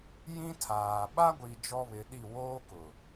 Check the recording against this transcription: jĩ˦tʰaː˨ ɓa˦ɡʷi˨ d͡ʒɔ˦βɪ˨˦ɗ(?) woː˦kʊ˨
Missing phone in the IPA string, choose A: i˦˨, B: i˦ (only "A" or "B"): A